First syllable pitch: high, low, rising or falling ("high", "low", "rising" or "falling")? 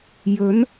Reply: rising